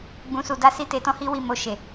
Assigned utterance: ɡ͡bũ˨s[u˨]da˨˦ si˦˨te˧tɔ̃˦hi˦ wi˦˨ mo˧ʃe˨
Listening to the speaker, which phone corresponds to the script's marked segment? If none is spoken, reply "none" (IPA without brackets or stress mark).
u˨